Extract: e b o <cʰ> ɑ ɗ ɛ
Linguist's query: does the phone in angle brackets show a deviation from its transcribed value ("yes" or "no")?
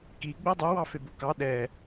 yes